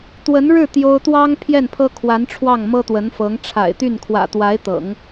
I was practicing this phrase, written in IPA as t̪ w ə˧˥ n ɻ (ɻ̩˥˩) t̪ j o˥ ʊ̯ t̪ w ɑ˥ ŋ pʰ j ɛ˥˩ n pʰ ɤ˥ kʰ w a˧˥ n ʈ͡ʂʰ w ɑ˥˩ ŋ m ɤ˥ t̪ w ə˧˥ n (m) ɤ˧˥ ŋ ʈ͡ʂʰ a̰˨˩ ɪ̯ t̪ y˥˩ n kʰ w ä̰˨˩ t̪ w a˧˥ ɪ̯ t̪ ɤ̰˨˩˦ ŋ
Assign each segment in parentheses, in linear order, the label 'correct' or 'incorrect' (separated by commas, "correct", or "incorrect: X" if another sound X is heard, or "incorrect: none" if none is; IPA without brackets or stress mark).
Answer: correct, incorrect: f